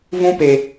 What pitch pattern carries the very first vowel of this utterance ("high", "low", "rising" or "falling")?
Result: high